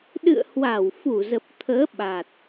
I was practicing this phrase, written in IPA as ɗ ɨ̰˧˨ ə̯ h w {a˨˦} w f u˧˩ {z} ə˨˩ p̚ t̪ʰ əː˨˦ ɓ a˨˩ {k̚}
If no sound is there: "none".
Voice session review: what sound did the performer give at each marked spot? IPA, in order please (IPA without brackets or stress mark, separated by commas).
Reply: a˧˩, z, t̚